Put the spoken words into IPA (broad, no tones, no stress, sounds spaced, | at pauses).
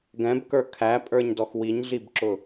ɡ ɛ̃ b k ə˞ kʰ æ pʼ ə˞ ɲ d ɔ x w i ɲ ɮ i b ǁ ʊ